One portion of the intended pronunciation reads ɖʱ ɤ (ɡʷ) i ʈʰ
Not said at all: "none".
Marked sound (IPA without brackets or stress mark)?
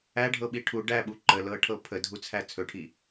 ɓ